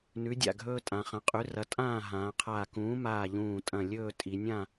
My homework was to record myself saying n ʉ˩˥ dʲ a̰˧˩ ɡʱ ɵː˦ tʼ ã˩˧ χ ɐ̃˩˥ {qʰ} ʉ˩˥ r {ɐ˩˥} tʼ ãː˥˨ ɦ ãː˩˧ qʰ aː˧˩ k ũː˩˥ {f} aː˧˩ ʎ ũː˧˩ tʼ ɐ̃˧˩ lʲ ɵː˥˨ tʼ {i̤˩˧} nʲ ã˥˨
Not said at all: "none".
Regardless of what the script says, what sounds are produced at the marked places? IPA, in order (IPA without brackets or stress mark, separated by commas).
qʼ, ɐ˩˥, m, i˩˧